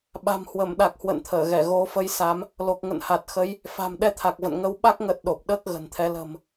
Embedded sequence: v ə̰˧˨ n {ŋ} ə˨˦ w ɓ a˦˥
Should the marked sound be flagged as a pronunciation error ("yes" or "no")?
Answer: no